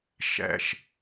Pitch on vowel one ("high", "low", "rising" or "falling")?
high